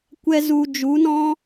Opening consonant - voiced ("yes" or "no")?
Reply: no